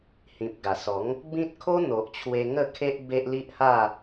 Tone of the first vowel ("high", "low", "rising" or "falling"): low